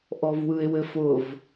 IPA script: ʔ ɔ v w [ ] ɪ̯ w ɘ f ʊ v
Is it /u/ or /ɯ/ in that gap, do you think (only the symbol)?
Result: ɯ